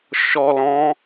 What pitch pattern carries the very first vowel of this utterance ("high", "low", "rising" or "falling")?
low